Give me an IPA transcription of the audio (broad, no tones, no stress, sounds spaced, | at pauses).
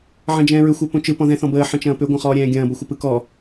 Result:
ʕ ɐ̃ d͡ʒ ɛ̃ː ɹ ʏ xʷ ɛ p õ t͡ʃ ɯ p ɔ̃ ð ɛ̃ θ ɔ̃ b əː ħ ə̃ t͡ʃ ɐ̃ː p ʏ ɡʷ ɐ̃ χ ɔː ɾʲ ɛ̃ː ɡʲ ɐ̃ː b ʌ xʷ ə p ɯ k ɔ